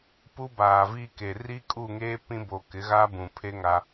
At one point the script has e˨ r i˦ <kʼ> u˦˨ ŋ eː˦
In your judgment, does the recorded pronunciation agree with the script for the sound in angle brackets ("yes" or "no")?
yes